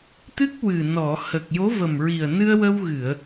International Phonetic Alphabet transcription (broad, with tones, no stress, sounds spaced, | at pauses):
t̪ ɨ˦˥ k̚ w ɨ˨˩ n ɔ˨˩˨ h əː˨˩ k̚ j o˧˥ v ə˨˩ m ɹ i˨˩ ə̯ n ɨ˧ ə̯ w ə˧ w ɣ ɨ˨˩˨ ə̯